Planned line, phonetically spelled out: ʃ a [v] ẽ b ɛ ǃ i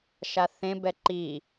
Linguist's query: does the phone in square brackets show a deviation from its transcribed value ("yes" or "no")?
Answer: yes